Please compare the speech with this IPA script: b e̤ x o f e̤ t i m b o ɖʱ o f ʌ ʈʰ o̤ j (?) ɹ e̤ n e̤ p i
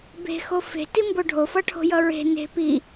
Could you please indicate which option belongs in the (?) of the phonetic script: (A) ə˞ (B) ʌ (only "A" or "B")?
B